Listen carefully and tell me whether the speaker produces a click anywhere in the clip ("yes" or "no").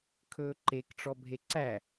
yes